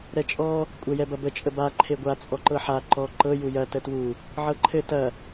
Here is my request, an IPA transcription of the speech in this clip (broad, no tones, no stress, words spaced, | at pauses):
ɾɛt͡ʃʼɔ | kʷʼɛjɛbɐbə t͡ʃʼəba ǃʰeɡʷa t͡sʼɔǃɤħa ǃɔ ǃɤ jujɐ tətwu | ʕɤǃʰɘ tɐ